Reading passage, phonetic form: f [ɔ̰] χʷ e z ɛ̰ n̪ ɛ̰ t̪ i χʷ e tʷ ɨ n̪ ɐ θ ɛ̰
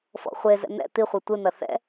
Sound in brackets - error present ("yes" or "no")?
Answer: no